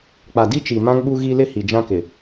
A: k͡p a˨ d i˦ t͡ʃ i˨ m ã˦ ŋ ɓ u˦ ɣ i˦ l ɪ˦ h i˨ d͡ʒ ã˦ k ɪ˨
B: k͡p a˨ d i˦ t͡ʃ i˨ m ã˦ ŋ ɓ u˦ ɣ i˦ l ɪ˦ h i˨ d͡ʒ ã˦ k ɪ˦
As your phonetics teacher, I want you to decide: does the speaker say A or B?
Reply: A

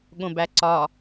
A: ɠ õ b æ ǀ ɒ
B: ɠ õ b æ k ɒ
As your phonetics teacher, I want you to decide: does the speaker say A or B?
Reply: A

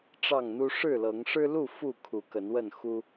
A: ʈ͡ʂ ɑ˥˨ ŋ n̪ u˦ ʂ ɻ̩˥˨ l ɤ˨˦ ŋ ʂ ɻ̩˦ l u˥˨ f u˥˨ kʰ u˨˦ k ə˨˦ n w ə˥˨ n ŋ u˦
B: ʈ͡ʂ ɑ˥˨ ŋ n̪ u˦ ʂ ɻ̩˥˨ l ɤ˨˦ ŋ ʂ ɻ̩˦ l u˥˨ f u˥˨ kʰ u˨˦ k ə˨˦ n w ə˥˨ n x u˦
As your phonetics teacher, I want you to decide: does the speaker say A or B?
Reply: B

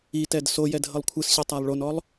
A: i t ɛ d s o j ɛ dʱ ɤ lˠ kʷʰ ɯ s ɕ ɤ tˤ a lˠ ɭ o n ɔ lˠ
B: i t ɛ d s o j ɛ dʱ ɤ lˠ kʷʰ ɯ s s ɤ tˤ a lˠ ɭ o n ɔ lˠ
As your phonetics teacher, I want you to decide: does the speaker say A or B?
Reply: A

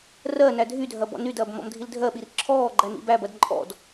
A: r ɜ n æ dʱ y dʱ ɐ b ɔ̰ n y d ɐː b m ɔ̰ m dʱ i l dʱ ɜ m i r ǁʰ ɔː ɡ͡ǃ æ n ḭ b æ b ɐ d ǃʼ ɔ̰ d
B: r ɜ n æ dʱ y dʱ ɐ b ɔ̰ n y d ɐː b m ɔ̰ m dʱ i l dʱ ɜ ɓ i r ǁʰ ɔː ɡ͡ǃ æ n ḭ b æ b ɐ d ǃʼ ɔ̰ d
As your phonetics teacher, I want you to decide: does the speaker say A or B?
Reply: B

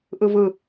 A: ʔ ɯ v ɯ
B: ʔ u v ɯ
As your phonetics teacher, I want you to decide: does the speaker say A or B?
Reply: A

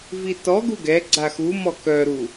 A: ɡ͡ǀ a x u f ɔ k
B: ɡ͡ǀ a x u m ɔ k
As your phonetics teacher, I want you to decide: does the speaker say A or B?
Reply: B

